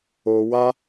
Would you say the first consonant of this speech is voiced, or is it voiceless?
voiced